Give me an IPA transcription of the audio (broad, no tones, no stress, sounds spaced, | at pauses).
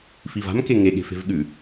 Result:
f i v a̤ m k e ŋ e ɠ e̤ f e̤ v ɠ ʉ